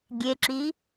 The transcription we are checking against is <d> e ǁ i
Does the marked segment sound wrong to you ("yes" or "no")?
yes